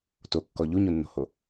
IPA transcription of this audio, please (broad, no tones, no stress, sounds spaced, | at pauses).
t o kː ɔ ʎ u ɲ u nː o̤ h o